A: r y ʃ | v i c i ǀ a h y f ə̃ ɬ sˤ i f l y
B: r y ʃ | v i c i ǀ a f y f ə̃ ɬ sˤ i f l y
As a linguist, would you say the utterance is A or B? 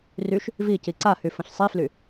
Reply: A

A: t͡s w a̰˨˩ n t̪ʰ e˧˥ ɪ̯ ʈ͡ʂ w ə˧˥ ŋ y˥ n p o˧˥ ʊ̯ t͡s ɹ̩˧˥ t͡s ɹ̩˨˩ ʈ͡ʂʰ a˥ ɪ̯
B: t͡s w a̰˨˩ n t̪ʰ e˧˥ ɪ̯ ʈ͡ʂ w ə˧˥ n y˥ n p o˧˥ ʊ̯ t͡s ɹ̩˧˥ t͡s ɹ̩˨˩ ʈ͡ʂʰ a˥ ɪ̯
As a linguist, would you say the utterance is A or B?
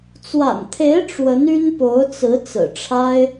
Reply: B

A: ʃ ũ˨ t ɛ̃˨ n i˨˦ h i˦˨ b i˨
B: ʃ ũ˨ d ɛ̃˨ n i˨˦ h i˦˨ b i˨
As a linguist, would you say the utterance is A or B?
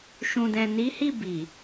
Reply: B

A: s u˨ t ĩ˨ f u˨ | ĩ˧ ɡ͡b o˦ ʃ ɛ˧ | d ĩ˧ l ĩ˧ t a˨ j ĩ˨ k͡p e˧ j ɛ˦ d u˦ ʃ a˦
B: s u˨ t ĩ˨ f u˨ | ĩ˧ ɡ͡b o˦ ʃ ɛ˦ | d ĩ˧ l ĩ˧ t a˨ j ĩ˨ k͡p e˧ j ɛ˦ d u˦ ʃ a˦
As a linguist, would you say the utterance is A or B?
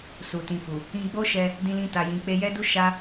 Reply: A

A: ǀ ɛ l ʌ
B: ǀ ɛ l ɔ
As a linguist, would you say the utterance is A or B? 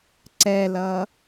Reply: A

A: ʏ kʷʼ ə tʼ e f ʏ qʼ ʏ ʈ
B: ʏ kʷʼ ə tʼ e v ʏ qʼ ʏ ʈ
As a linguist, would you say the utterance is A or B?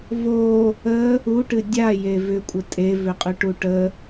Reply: B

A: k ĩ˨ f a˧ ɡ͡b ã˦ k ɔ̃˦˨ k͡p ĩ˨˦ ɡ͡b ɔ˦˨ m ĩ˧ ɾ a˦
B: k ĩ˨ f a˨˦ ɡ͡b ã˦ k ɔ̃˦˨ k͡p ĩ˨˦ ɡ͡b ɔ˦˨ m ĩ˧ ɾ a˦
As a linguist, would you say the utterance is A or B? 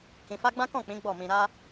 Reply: A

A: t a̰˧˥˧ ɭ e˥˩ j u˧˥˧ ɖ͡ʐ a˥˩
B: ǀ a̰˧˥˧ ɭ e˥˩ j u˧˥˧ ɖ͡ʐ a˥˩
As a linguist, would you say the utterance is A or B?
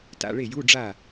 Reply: A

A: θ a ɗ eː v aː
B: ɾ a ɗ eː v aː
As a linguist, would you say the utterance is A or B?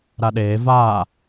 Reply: B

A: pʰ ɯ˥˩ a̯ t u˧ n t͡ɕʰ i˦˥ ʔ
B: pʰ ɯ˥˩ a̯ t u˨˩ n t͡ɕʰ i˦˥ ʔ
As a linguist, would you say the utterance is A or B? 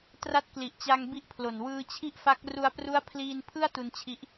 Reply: A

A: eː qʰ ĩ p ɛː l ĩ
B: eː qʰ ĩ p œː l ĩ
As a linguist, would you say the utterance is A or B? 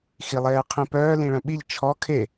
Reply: B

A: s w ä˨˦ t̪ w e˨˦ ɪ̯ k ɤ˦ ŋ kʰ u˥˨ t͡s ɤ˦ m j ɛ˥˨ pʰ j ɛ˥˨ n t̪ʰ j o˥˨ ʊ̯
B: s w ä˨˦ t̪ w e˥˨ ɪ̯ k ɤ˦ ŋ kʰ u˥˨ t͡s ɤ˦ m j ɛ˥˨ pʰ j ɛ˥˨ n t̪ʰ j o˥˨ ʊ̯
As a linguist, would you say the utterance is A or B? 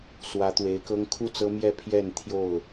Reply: A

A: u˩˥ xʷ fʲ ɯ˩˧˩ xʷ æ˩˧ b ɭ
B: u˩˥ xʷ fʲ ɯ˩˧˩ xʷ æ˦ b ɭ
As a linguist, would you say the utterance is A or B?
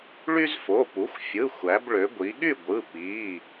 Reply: A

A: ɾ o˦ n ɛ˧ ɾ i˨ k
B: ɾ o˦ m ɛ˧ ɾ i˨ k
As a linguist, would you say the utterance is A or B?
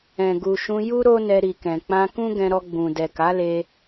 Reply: A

